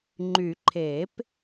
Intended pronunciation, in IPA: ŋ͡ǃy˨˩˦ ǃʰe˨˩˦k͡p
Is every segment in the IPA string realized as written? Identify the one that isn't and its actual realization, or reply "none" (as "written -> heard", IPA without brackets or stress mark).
k͡p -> p